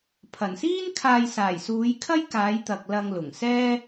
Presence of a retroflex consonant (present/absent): absent